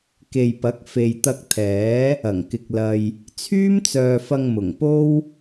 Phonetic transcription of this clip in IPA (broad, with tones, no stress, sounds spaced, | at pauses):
k e˨ j p ɐ˨˥ k̚ f e˨ j t̪ ɐ˧ k̚ t̪ʰ ɛː˨˥ | ɐ˨˩ ŋ k ɪ˨ k̚ l ɐ˧ j | t͡sʰ yː˥ m t͡s œː˨ f ɐ˧ ŋ m ʊ˨˩ ŋ p o˥ w